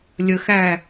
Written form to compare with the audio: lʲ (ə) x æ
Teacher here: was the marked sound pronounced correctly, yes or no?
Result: yes